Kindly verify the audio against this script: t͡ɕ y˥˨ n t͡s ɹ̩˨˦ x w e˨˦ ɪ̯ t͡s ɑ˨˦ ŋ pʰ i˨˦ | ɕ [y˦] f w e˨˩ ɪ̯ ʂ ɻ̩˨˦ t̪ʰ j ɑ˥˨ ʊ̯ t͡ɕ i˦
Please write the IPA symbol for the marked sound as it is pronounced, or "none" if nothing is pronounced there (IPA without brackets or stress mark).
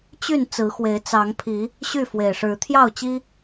y˥˨